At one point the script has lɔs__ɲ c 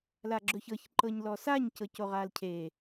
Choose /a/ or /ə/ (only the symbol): a